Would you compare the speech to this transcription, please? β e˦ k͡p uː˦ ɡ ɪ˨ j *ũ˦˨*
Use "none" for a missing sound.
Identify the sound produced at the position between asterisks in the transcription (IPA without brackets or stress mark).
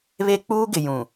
ũ˨